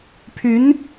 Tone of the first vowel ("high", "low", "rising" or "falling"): rising